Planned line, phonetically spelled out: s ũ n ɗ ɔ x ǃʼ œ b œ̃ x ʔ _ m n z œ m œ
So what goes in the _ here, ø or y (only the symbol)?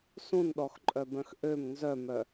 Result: ø